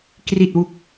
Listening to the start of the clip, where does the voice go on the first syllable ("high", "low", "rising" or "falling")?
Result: low